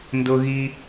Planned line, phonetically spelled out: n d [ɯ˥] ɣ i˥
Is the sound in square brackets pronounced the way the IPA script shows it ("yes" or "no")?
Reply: no